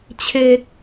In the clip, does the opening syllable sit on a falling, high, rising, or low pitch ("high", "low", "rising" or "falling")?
high